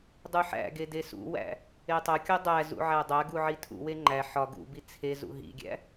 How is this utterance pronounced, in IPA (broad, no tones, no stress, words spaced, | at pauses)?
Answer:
dˤuħæ̰ɡe desṵwæ̰ | etˤokʲo dˤæzṵ ʕædˤæɡu ʕitʰṵwe ŋ͡ǃæ ħɒ ɡṵbi t͡sʰezṵ ɦḭɡʲæ̰